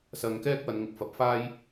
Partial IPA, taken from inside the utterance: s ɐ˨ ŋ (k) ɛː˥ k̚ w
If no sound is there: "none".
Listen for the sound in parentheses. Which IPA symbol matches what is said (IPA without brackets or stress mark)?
k